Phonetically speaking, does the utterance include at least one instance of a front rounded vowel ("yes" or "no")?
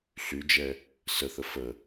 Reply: yes